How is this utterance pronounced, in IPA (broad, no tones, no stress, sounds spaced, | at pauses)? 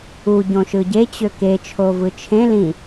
u ɟ õ ʃ ɯ ɟ e t͡ɕ ø k e t͡ʃʰ o v ɯ t͡ʃʰ ẽ l ĩ